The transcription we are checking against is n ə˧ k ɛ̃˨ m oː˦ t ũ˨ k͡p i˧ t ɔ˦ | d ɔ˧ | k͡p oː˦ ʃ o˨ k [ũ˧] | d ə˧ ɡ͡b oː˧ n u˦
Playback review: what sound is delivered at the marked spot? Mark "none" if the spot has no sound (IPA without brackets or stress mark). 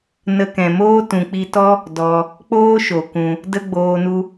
ũ˧